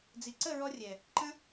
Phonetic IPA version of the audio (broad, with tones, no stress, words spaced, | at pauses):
d͡zi˨ǀə˦˨ ɹɔ˦rʲɛ˨ | ǃə̃˦